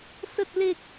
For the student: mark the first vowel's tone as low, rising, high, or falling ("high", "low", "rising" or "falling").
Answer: low